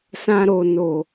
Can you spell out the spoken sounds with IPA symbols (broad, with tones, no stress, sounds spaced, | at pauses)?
s ã˧ ɾ o˨ n o˨